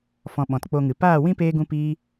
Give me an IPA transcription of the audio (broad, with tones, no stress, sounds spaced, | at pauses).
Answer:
f ɔ̃˨ ɓ ɔ̃˨ t k͡p o˧ ŋ ɨ˨ p aː˦˨ w ĩ˦ p eː˦ ɡ ũ˦ p iː˦